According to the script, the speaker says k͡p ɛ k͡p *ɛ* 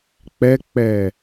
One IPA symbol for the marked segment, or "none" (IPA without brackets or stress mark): ɛ